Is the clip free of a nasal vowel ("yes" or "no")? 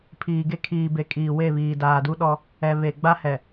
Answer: yes